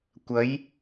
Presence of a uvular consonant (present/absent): absent